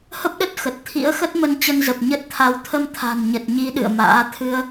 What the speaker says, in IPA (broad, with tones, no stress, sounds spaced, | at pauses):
h ə˦˥ p̚ ɗ ə˦˥ t̚ x ə˨˩ t̚ t̪ʰ ḭ˧˥ ə̯ x ə˦˥ t̚ m ə˧ n t͡ɕ ə˧ n z ə˨˩ p̚ ɲ ə˦˥ t̚ t̪ʰ a˨˦ w t̪ʰ ə˧ m t̪ʰ a̤˨˩ n ɲ ə˨˩ t̚ ɲ i˨˦ ɗ ɨ̰˧˨ ə̯ m a̰ː˧˥ t̪ʰ ɨ˧ ə̯